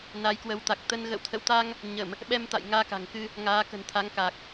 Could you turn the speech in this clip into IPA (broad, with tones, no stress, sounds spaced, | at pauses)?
n a˨˦ j k w ə˨˦ w t̪ a˨˩ k̚ t̪ ə˧ n ɣ ə̰˧˨ w t̪ʰ ə̰˧˨ w t̪ a˧ ŋ | ɲ ə˧˩˨ m | ɓ ɛ˧ m t̪ a̰˧˨ j ŋ aː˧ k a̤˨˩ ŋ k ɨ˧ | ŋ aː˨˦ k ə̤˨˩ n t̪ʰ a˨˦ ŋ k a˨˩ k̚